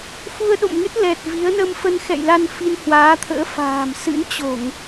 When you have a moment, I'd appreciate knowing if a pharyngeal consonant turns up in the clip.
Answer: no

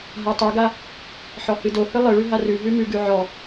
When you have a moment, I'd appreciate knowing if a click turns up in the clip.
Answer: no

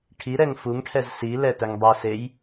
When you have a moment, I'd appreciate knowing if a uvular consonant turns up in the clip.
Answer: no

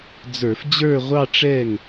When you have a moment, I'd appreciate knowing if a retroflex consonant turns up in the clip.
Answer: yes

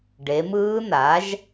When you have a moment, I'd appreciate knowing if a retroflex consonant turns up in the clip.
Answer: yes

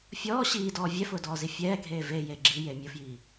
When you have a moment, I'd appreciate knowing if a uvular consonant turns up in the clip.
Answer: no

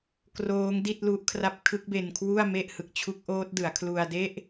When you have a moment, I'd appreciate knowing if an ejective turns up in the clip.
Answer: no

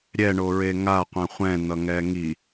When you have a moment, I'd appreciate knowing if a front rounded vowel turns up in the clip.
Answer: no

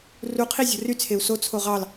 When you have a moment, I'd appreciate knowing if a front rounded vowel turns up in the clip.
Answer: yes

